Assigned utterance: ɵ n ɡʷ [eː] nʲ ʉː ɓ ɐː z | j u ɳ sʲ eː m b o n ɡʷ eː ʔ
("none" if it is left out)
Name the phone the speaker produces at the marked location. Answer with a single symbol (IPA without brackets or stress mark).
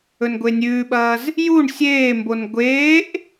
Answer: e